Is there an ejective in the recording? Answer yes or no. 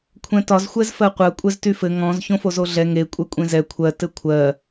yes